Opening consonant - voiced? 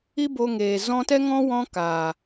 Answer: yes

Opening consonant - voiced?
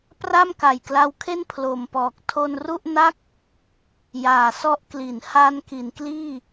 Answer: no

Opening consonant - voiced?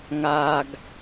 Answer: yes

